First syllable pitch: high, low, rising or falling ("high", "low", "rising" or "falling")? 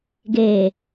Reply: low